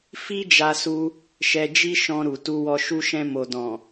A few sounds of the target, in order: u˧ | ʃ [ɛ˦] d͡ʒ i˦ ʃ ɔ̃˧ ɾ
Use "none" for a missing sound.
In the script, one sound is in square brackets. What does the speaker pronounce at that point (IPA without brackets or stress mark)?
ɛ˧